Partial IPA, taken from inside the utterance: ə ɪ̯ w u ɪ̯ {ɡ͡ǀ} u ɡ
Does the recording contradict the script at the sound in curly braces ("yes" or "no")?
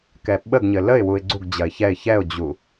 no